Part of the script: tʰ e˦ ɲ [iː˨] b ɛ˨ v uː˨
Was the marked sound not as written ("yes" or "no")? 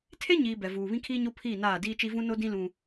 no